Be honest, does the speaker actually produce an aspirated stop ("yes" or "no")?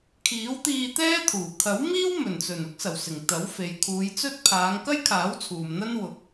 yes